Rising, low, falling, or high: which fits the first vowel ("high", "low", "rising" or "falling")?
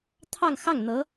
falling